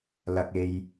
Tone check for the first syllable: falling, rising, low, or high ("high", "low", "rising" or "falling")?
low